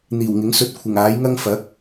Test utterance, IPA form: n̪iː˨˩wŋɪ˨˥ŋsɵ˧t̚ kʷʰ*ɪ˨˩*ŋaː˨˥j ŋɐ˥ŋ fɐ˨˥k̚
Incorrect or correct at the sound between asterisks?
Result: correct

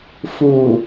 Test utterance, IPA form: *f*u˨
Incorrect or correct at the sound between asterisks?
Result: correct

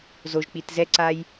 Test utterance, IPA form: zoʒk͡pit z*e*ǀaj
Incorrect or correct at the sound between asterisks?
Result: incorrect: ɛ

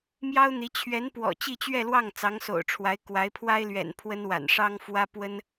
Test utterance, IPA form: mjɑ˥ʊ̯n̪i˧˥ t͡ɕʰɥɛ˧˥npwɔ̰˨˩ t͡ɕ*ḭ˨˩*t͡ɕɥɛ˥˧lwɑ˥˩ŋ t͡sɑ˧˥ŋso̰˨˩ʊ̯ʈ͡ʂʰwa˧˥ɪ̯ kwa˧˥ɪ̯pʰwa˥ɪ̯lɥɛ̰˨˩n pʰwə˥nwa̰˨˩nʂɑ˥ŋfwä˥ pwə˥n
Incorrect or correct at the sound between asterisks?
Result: incorrect: i˥˧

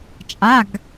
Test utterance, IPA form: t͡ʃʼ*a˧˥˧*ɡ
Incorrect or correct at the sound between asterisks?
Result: correct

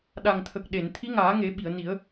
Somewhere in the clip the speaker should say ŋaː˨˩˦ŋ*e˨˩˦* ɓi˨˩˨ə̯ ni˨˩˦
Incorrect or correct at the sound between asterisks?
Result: correct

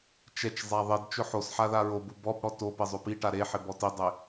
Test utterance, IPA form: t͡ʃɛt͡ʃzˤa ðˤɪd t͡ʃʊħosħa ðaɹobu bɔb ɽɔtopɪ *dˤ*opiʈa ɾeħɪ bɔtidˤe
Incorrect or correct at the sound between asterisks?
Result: incorrect: zˤ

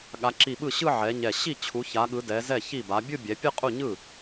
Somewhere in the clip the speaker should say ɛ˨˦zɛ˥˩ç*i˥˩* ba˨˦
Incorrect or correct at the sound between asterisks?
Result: correct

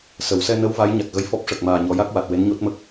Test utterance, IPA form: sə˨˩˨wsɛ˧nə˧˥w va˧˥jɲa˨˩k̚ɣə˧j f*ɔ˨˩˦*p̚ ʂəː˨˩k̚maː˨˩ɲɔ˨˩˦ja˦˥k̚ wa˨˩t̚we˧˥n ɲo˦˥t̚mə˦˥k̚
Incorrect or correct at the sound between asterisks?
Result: incorrect: ɔ˦˥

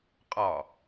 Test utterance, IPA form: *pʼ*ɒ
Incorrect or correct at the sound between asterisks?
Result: incorrect: qʼ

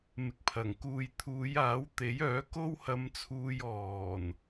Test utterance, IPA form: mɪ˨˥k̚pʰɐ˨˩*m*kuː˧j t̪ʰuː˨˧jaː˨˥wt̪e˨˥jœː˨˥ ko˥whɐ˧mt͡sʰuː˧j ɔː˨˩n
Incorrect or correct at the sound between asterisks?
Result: incorrect: ŋ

